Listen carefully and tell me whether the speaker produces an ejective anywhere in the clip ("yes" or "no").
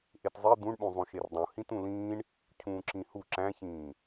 no